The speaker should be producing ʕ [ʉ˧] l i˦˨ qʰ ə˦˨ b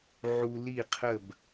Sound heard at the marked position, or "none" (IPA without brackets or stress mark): u˧